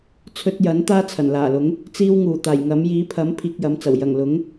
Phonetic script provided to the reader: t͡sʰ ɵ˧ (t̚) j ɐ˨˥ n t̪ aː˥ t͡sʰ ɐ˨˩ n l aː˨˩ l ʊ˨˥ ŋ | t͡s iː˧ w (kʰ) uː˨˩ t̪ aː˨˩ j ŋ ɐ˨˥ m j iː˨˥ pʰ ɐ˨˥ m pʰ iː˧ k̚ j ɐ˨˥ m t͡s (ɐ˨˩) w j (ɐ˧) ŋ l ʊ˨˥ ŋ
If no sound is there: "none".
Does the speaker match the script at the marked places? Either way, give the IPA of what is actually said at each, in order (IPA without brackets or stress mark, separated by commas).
t̚, ŋ, ɐ˨˩, ɐ˨˩